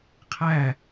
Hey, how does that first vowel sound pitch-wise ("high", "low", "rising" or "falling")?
falling